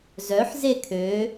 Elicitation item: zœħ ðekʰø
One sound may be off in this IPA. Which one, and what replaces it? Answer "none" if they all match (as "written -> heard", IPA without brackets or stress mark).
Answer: ð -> z